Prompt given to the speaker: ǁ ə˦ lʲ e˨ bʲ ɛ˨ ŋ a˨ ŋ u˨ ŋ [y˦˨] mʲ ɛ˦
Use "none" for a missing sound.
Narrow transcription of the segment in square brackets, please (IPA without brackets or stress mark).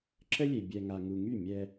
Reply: y˦˨